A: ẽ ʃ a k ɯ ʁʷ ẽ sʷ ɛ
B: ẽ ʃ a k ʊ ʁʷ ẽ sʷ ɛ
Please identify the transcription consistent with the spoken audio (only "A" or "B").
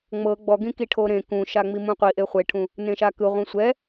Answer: A